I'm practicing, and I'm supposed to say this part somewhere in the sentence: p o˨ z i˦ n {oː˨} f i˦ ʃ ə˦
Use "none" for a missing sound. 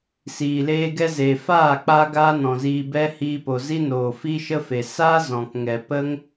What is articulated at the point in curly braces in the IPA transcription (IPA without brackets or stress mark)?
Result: oː˨